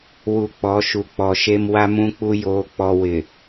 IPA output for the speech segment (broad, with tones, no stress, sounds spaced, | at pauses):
w u˨ k͡p ɔ˨˦ ʃ u˨ k͡p ɔ˨ ʃ e˦ m w a˦ m ũ˦ k͡p u˦ j oː˦ k͡p ɔ˦ w ɪ˨